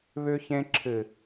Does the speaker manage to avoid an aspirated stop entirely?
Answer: no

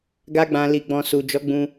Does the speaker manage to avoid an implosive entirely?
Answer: yes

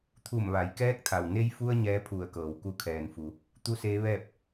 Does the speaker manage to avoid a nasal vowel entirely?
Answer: yes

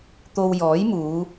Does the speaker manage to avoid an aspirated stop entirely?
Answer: yes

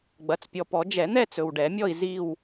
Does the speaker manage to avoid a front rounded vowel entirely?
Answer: yes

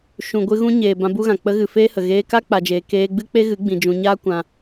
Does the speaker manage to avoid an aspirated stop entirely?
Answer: yes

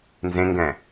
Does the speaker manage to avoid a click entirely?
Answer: yes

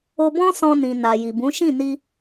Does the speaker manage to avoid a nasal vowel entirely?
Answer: no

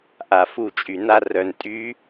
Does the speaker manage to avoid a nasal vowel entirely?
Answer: yes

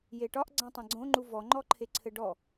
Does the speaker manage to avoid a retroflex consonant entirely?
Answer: no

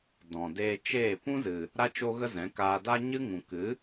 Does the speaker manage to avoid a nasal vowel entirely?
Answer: no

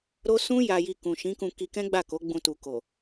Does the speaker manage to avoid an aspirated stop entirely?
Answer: yes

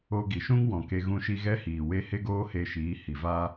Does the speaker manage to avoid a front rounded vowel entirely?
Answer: yes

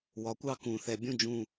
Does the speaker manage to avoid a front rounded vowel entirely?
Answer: yes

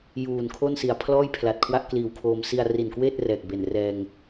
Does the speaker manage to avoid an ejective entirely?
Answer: yes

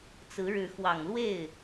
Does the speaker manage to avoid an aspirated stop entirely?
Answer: yes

